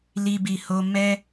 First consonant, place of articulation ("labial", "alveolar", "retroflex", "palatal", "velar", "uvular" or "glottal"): alveolar